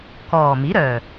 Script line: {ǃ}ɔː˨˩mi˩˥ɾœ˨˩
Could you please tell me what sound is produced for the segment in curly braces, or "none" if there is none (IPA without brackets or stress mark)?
k